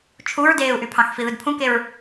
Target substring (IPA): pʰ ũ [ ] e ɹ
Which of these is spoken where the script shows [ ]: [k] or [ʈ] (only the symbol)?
k